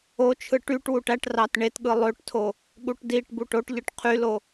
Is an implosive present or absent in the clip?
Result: present